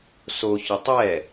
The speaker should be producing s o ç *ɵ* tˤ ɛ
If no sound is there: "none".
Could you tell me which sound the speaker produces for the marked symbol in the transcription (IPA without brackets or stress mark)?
ɵ